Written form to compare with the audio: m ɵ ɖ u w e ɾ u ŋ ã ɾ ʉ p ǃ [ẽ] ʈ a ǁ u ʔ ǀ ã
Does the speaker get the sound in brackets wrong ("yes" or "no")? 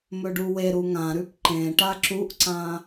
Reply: no